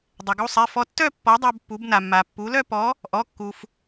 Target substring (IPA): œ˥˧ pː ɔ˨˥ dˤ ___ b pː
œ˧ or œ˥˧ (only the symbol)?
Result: œ˧